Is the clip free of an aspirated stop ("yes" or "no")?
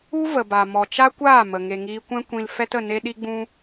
yes